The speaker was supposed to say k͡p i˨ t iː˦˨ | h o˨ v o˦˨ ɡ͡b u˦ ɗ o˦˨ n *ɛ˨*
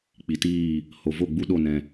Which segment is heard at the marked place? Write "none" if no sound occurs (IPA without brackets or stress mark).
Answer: ɛ̃˨